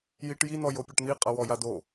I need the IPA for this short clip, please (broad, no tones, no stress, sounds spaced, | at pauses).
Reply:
j i ʈ j i n ɔ j o pʲ ɔ ʈ n̪ i qʼ a w ɔ j a d o